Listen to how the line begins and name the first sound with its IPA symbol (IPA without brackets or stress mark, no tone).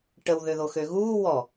ʈ